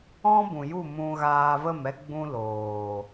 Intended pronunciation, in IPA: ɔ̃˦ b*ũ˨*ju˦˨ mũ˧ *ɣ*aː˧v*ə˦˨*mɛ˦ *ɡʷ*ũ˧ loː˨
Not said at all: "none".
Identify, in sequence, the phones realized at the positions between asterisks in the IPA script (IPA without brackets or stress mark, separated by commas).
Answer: ũ˨, ɣ, ə˦˨, ɡ͡b